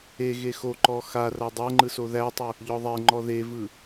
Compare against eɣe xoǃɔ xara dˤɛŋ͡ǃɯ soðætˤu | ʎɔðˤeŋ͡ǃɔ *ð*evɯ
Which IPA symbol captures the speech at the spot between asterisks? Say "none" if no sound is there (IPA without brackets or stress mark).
ð